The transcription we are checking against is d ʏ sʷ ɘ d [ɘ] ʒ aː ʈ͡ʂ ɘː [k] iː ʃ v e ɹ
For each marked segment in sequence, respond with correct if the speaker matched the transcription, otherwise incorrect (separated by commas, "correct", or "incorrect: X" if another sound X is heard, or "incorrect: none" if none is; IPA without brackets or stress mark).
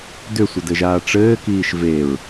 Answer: correct, correct